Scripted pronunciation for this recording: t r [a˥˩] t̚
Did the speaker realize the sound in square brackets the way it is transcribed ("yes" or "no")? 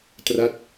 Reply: yes